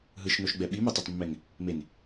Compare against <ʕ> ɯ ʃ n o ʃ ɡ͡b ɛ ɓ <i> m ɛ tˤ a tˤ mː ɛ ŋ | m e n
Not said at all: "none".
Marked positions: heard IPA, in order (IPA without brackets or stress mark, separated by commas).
ɦ, i